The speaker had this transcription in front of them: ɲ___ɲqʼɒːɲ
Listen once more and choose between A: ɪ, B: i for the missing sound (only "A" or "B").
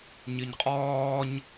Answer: B